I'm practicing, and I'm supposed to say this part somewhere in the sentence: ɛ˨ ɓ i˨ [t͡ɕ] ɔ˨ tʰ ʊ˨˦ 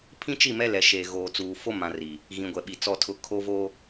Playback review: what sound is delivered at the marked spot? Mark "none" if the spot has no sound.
t͡s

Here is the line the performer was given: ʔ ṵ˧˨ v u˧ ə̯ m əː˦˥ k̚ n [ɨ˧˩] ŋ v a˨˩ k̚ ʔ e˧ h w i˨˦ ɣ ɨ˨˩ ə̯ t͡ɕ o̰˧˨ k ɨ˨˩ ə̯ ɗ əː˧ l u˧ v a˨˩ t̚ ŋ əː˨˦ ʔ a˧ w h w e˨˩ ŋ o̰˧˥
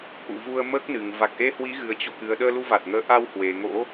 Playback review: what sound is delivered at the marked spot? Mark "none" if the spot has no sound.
ɨ˨˩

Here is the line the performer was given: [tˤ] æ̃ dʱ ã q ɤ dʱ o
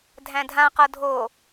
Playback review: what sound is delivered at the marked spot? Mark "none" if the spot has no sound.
dʱ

